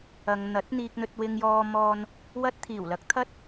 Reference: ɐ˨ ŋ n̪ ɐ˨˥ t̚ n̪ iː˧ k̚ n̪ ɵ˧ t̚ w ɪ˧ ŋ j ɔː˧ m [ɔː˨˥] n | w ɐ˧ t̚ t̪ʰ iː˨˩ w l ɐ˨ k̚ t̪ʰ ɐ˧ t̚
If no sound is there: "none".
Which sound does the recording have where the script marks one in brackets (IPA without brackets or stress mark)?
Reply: ɔː˧